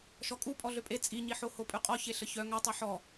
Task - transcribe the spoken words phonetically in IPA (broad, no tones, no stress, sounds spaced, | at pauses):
ʃ ɔ kʼ u pʼ ɔ ɮ ø pʼ e t͡sʼ i ɲ i ħ o h o pʼ ʉ qʼ ɔ ç e ɬ ə ç œ ŋ œ tˤ œ ħ ɔ